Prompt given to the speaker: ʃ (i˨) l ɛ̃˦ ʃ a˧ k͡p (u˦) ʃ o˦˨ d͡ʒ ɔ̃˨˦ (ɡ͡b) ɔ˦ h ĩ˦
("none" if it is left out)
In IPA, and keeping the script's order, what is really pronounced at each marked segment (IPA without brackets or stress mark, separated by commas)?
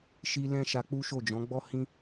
i˧, u˦, ɡ͡b